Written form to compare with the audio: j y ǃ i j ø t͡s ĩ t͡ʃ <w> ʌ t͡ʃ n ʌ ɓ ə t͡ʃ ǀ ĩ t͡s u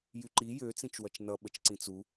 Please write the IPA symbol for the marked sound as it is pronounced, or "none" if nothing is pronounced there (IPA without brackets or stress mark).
w